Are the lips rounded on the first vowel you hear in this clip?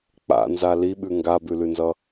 no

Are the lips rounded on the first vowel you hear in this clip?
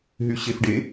yes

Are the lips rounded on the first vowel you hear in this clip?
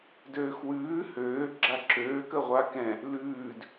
yes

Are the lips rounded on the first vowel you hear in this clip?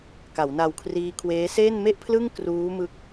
no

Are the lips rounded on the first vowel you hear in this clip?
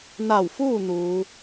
no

